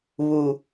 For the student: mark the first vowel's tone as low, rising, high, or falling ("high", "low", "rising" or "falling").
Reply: low